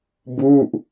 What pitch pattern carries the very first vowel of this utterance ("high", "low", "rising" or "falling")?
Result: falling